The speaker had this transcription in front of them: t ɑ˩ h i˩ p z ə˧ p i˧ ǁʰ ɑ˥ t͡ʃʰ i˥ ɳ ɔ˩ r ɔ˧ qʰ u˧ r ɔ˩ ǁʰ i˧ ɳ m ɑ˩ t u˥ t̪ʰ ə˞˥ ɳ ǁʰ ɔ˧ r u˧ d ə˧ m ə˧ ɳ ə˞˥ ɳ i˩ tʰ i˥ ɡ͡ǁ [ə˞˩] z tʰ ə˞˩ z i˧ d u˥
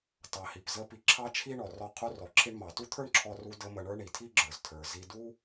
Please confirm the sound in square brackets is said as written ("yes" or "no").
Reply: yes